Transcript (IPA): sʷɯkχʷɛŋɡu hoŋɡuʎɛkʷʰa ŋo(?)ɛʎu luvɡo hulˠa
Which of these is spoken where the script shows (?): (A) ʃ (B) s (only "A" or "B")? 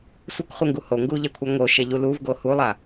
A